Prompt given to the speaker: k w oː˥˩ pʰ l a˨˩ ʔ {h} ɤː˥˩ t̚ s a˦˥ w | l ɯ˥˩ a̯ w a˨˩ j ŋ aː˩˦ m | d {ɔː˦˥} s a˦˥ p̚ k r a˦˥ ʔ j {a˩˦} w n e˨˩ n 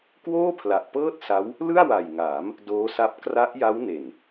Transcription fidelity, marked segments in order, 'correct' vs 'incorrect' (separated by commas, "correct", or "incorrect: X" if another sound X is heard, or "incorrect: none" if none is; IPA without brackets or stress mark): incorrect: p, incorrect: oː˦˥, incorrect: a˦˥